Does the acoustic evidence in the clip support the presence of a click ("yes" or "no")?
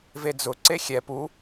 yes